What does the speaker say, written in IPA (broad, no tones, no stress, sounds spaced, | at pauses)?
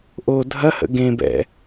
ʔ o dʱ ɐ h ə̰ ɡ ẽ b ɛ̰